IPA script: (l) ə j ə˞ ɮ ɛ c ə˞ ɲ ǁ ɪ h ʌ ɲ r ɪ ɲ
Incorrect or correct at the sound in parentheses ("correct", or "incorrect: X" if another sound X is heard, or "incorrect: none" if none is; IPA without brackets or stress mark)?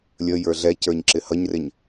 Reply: incorrect: lʲ